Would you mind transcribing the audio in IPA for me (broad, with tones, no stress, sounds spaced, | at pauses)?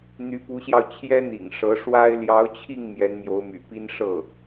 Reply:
n̪ y˧˥ p u˧˥ ɕ j ɑ˧ ʊ̯ t͡ɕʰ j ɛ˥ n̪ ḭ˨˩ ŋ ʂ ɤ˧˥ ʂ w a˥ ɪ̯ l j ɑ˧˥ ʊ̯ t͡ɕʰ i˥˩ ŋ m j ɛ˧˥ n m j o˧˥ ʊ̯ m y̰˨˩ p i˥ n ʂ ɤ˥˩